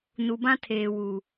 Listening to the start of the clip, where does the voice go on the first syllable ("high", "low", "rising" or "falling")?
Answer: low